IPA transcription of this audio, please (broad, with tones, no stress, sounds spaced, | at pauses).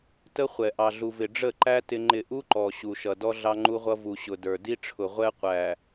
t ə˦ χʷ ɛ˨ ʔ ɑ˨ ɮ u˨ v ɪ˨ ɖ͡ʐ ə˦˨ ǃ æ˦ t ɪ˦ ŋ͡ǃ ɪ˦˨ ʔ u˦ ǃ ɔ˨ ɕ u˨ ʃ ʌ˨ d ɔ˦ ɮ ɑ˦ ŋ͡ǃ u˦ ʁʷ ʌ˦ v u˨ ɕ ʊ˨ d ə˞˨ d i˦ ʈ͡ʂʰ ʊ˨ ʁʷ ɛ˦ qʷ æ˨